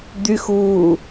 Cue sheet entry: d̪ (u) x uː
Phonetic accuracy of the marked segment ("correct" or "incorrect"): incorrect